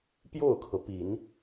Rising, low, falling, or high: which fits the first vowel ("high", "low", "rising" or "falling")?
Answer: falling